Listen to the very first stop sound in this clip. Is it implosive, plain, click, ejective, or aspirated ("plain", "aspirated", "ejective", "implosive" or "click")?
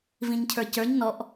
aspirated